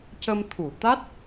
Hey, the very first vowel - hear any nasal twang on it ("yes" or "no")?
no